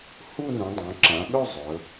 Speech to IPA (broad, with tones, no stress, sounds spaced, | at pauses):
h u˥˧ n ũ˩˧ dˤ õ˩˧ ǁ ã˩˧ ɠ ɵ˥˧ zˤ ɵ˩˧